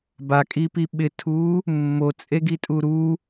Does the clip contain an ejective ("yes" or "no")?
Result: yes